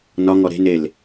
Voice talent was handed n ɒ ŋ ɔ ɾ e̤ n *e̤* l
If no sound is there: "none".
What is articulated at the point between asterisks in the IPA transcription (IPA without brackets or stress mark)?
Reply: e